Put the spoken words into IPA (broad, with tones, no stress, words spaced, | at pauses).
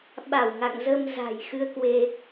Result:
ɓa˧˩wŋa̰˧˨ŋzə˧m za̤˨˩jxɨ˧ə̯kwe˧